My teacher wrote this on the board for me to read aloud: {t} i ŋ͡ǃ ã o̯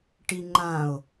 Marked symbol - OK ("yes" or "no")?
no